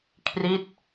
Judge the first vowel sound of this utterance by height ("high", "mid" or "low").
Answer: high